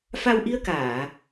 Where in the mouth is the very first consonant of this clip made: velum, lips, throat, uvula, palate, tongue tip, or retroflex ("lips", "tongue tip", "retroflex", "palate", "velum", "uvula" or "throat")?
lips